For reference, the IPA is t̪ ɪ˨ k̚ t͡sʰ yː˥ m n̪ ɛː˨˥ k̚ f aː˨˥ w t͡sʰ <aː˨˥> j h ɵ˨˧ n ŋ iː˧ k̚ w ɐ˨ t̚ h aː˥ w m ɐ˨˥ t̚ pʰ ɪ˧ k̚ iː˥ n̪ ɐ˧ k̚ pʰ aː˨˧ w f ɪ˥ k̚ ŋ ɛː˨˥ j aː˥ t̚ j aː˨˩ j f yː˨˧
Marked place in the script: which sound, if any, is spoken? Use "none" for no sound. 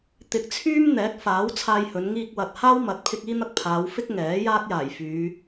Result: aː˧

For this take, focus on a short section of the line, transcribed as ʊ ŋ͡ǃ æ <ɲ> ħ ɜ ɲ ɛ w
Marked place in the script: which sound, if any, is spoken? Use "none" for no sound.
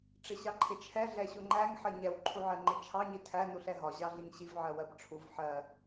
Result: ŋ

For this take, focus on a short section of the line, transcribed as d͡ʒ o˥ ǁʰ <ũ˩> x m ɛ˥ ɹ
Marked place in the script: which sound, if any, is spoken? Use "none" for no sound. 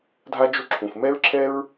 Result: ũ˩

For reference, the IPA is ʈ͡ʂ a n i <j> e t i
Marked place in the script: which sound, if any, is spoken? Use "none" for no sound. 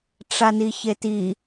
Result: ç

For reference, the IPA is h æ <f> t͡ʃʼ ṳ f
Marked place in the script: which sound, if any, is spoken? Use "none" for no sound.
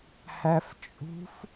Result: f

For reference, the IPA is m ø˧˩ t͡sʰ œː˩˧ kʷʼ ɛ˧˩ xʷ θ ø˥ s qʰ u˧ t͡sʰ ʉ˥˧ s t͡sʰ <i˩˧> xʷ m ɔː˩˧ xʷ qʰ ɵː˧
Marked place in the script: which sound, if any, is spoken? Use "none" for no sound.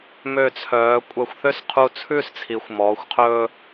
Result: i˩˧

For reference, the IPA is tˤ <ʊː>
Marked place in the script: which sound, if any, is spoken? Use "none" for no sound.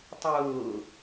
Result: ʊː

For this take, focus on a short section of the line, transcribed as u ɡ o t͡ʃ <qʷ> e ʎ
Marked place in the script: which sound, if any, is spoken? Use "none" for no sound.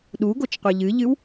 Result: qʷ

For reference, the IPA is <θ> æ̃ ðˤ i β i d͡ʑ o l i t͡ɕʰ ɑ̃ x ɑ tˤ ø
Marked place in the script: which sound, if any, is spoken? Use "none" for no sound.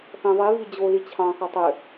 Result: θ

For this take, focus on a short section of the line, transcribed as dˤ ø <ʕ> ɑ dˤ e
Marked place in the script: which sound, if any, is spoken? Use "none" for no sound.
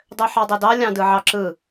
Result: ħ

